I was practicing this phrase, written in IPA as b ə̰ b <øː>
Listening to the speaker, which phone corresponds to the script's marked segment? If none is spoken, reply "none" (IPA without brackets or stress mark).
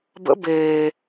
eː